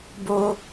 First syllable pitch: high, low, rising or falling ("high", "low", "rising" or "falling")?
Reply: high